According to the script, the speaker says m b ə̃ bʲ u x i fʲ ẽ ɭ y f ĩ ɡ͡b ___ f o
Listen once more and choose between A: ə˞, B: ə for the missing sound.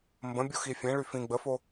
B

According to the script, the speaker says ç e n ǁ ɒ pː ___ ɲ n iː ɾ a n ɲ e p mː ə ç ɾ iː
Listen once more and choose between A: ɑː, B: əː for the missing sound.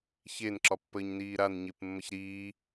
B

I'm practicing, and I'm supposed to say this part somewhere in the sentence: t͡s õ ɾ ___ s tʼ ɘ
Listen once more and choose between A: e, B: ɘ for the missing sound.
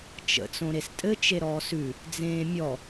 A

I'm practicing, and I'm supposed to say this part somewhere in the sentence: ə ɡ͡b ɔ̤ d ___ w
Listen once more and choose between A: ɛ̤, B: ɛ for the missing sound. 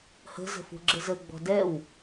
B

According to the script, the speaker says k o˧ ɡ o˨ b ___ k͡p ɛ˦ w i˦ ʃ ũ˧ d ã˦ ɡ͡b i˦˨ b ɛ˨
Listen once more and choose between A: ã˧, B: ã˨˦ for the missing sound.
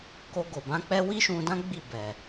B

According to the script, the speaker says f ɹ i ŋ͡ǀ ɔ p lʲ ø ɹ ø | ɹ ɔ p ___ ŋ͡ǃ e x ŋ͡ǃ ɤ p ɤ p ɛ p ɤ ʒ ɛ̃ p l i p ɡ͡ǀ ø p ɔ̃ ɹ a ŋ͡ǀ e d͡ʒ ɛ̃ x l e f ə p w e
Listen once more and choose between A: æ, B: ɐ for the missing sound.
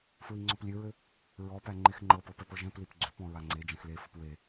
A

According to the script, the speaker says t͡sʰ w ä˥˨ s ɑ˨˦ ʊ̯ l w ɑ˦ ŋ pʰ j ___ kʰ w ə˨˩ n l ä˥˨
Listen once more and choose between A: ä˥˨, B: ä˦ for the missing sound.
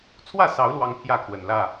A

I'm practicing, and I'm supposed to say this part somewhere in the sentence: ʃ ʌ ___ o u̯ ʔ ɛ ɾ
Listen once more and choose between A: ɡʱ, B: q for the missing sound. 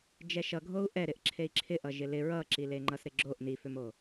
A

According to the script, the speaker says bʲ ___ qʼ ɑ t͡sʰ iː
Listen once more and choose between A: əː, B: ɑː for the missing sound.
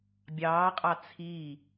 B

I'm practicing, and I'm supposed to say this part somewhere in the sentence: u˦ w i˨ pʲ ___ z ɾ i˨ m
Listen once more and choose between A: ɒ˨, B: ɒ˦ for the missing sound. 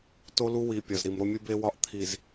A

